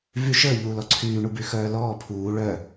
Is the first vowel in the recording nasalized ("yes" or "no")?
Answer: no